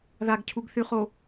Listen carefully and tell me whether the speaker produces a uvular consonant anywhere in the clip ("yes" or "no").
yes